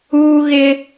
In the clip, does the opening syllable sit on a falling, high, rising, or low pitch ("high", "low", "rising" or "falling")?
high